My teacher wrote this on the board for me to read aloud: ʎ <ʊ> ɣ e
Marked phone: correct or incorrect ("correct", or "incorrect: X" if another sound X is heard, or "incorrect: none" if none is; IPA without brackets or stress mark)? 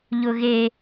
correct